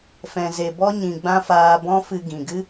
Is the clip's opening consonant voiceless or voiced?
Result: voiceless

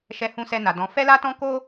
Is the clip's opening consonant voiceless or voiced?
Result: voiceless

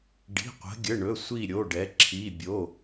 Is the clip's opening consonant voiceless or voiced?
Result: voiced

